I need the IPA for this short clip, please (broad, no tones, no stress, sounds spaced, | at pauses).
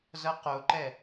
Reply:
z ʌ q o ǃ ɛ